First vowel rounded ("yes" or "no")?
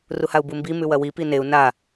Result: yes